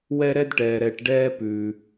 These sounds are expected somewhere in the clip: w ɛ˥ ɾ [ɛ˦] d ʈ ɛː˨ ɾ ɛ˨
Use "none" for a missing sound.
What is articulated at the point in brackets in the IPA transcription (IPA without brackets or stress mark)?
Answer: ɛ˥